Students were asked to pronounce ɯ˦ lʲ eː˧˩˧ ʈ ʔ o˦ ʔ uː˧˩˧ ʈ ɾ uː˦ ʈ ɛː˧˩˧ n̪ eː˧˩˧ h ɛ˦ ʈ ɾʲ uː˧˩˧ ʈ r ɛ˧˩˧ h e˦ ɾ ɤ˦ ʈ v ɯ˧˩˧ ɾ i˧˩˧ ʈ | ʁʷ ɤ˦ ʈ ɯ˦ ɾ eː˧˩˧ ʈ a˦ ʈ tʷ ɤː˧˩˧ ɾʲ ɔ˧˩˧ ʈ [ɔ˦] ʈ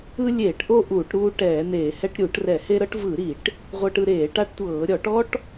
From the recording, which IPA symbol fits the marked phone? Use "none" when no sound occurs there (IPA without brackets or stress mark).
ɔ˦